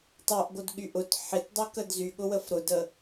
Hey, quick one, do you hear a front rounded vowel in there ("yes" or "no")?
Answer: yes